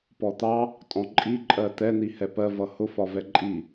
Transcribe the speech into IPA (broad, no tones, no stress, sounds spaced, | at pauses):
p ɔ t̪ ɑ | tʼ ɔ̃ ǃʼ i ǃʼ ɜ t̪ ɛ n̪ i h ɛ p ɜ v ʌ h ʊ f ɒ v ɛ ǃʼ i